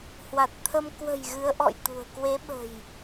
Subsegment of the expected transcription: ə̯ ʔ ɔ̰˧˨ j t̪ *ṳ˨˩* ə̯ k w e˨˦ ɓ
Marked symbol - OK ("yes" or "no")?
yes